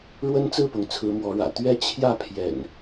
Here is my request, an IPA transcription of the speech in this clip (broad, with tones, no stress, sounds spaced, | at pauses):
ɻ w ə˦ n t͡s ɹ̩˥˨ p ʊ˩ ŋ t͡sʰ ɹ̩˨˦ m w ɔ˨˦ ɻ ä̰˨˩ t̪ ɥ ɛ˦ t͡ɕʰ j ä˥˨ pʰ j ɛ̰˨˩ n